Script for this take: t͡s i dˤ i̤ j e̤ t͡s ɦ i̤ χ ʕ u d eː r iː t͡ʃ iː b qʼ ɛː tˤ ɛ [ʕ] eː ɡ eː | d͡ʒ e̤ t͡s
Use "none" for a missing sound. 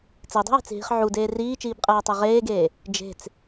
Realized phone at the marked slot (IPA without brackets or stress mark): ʁ